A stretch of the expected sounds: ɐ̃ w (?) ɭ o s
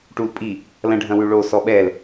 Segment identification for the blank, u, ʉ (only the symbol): ʉ